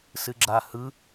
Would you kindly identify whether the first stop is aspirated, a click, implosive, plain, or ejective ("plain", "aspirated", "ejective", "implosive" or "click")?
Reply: click